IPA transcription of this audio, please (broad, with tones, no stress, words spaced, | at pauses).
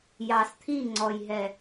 jɑ˨st̪ʰi˦˨ŋ͡ǀɔ˨jɦɛ˨